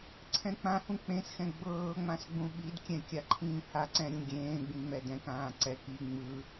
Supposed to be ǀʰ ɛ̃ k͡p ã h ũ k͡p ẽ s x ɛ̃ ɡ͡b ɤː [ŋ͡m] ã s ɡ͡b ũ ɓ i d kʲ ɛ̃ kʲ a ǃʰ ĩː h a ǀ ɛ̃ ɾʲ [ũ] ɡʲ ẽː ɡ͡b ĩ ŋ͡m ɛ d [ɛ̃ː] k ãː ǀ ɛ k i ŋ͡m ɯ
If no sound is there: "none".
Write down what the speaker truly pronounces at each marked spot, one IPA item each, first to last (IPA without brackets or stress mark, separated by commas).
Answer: ŋ͡m, ũ, ɛ̃